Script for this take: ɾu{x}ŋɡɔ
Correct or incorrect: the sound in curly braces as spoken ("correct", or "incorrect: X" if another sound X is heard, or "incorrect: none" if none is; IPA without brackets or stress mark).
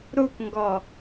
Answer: incorrect: k